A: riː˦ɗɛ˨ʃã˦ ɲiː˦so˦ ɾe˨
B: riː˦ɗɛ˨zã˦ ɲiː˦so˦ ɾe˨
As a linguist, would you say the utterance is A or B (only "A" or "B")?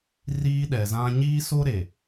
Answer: B